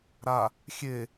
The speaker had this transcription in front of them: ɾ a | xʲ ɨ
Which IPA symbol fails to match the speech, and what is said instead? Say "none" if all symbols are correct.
ɨ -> e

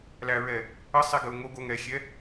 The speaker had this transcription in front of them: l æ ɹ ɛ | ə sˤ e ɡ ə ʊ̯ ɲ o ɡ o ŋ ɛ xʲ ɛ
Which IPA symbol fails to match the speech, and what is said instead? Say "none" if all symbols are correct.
ɲ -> ŋ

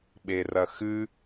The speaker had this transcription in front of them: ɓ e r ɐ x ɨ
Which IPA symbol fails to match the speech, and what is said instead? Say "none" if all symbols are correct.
none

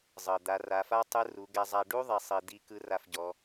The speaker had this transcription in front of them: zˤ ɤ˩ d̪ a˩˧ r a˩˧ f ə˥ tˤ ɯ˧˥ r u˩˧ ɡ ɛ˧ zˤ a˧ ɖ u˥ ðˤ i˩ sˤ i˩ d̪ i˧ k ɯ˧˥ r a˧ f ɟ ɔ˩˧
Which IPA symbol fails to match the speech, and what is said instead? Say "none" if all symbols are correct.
ə˥ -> a˥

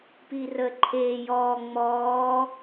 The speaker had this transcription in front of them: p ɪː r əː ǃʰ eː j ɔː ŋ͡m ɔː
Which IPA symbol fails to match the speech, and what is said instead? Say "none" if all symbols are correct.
ɪː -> iː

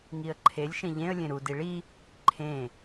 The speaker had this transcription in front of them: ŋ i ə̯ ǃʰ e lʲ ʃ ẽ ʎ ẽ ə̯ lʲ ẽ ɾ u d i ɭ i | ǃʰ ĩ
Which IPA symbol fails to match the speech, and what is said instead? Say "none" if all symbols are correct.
ĩ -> ẽ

